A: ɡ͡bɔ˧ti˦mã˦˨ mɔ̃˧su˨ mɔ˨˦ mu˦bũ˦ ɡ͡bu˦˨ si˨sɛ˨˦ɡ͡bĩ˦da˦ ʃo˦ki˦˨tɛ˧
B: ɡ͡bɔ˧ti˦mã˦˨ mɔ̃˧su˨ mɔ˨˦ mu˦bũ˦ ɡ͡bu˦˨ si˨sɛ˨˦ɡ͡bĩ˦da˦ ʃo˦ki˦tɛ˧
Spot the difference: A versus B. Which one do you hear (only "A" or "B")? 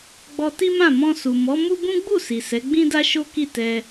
A